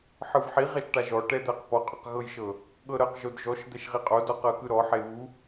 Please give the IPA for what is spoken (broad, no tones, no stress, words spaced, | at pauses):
ħɯvħi ʁɛʃʈaʒɔ ʈɛd̪ɛqpɔ qʼɔqɣɤjʃɤ | ɠɤɾɤq ʒodʒɔʃ d̪ɛʃʁiqʼod ɔqɤkɯɾɔ ħeβu